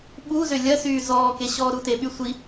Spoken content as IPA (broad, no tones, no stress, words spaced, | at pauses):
ɓuzø lʲɐsyː zɔːke ɕɔːɾuteɓy sʷi